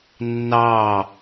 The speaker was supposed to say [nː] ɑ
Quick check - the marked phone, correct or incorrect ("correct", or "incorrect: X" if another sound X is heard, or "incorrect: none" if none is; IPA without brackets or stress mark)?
correct